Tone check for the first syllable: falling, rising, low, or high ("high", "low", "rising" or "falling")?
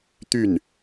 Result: falling